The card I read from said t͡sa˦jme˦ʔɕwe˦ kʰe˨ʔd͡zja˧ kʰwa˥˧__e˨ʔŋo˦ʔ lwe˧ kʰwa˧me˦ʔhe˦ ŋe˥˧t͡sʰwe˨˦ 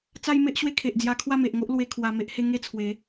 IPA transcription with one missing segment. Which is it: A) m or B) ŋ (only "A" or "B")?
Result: A